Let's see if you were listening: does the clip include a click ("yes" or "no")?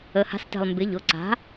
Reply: yes